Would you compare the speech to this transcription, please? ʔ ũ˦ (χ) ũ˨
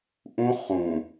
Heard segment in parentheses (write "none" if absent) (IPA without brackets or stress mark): χ